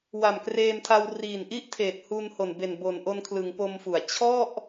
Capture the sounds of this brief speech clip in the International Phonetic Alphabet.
wa˨˩m kreː˧mtʰa˧w riː˨˩nʔi˥˩ʔtʰeː˨˩t̚ huː˧nho˨˩n be˨˩nbo˨˩nʔo˧nkʰlɯ˩˦ŋ po˧mfu˨˩a̯ t͡ɕʰɔ˥˩ʔ

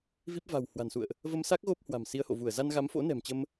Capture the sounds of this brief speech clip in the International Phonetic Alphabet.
vi˦˥p̚ va̤˨˩w hwa̤˨˩nsṵ˧˨ə̯ʔ | və˧msa˦˥k̚ ɣo˦˥p̚hwa̤˨˩msi˨˦ə̯ho̰˧˨ vu˧˩ə̯ za˧nɣa˨˦mfo̰˧˥ nɛ̤˨˩mt͡ɕə˧m

